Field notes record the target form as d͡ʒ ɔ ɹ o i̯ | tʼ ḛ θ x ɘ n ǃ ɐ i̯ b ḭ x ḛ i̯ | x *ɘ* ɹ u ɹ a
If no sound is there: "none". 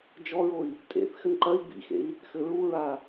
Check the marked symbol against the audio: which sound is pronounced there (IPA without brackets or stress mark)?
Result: ɘ